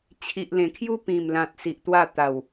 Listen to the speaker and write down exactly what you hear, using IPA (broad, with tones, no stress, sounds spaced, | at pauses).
t͡ɕʰ i˨ ʔ l ẽ˨˩ kʰ j u˦ p ĩ˨˩ m l ã˨ t̚ s i˨ ʔ t̪ w a˥˧ t̪ a˨˩ w